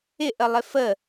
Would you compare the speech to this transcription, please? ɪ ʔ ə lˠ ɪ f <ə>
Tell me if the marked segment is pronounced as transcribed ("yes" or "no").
yes